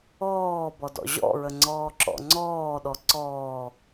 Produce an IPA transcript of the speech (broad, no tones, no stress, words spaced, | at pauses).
ɔːbɔ dɔ̰ʑɔ̰ɹə ŋ͡ǀɔːǁɔ̰ŋ͡ǀɔːɗɔ ǀɔː